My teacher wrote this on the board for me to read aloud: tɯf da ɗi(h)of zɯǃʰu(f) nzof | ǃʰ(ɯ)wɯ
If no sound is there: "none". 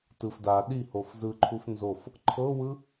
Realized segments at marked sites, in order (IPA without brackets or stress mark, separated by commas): h, f, ɤ